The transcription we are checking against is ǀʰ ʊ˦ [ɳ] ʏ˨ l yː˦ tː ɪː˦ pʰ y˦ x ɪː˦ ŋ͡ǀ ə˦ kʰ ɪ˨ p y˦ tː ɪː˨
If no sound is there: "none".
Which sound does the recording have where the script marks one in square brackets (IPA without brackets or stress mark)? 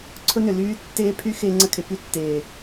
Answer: n